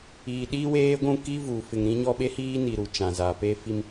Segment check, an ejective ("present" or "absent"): absent